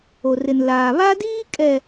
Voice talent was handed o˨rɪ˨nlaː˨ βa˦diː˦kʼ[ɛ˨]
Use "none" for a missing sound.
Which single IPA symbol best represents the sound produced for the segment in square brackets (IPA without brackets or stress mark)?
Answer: ɛ˨